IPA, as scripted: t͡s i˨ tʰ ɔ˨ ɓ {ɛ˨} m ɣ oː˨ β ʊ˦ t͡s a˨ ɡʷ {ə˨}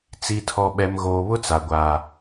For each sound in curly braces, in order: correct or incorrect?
correct, incorrect: a˨

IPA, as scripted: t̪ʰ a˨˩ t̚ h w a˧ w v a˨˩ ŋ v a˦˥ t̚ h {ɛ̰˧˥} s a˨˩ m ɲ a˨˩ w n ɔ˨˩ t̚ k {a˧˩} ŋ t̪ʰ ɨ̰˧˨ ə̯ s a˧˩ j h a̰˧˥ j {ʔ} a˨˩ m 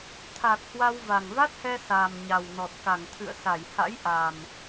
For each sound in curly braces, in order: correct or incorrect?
incorrect: ɛ˧, correct, correct

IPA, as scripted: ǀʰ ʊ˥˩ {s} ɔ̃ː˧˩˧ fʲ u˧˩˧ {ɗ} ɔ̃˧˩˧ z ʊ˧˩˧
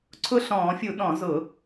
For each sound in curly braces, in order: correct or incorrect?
incorrect: ɬ, correct

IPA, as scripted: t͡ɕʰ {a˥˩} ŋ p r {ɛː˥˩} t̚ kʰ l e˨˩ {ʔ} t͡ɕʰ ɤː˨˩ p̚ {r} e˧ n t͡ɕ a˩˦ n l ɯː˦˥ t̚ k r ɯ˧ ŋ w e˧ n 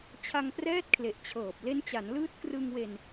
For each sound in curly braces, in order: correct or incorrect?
incorrect: a˧, correct, correct, incorrect: l

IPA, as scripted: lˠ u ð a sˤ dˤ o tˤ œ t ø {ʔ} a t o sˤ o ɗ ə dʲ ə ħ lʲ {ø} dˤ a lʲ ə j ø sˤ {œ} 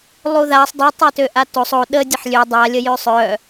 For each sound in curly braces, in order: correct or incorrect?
correct, correct, correct

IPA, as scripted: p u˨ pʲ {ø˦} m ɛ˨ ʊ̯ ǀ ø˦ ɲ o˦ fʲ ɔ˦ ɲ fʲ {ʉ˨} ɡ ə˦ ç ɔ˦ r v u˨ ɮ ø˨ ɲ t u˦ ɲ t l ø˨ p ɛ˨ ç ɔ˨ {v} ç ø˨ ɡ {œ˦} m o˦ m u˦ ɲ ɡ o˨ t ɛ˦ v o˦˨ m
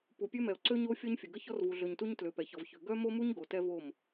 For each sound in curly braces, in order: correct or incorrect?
correct, incorrect: ə˨, correct, correct

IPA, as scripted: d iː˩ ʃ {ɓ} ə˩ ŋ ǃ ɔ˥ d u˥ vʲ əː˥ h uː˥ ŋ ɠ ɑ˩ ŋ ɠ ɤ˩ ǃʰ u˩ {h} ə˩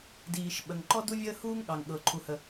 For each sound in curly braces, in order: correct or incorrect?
correct, correct

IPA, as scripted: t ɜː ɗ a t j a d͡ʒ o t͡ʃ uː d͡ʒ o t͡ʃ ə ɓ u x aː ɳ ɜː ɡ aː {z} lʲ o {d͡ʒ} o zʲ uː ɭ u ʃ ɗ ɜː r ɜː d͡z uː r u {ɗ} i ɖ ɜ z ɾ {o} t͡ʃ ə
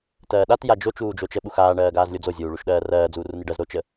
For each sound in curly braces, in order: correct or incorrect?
correct, incorrect: d͡z, incorrect: n, correct

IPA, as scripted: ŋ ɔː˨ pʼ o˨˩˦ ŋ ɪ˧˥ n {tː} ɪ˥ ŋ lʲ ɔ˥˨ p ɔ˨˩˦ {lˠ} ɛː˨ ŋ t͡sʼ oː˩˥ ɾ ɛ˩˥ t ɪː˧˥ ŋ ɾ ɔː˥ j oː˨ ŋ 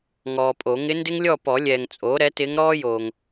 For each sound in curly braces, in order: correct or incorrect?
incorrect: d, incorrect: lʲ

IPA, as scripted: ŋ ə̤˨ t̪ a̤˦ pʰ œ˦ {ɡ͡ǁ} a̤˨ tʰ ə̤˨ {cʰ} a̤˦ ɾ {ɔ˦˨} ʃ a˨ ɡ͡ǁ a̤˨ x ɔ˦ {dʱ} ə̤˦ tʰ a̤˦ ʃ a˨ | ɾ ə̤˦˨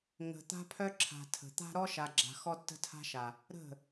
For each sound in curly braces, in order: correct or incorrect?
incorrect: ǁʰ, incorrect: t̪, incorrect: ɔ˦, incorrect: tː

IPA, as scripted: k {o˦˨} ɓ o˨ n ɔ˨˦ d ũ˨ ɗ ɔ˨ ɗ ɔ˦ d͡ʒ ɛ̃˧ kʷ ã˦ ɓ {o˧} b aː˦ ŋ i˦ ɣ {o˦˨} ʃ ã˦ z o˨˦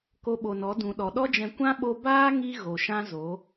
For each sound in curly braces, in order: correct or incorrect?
incorrect: o˧, correct, incorrect: o˨

